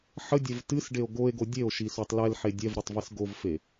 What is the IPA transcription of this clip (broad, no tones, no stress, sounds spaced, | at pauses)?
ħ ə dʲ ɛ v t ɨ s ɖ e o̯ ɡ o e̯ ɡ o dʲ e o̯ ʃ i s o tˤ l ɛ l ħ e dʲ ɛ v ɾ ɨ tˤ v i s ɡ o v f e